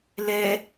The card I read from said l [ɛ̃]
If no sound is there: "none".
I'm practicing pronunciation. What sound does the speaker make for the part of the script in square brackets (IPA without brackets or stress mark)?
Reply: ɛ